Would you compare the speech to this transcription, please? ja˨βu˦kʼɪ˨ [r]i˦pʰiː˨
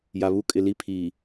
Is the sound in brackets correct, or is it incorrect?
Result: incorrect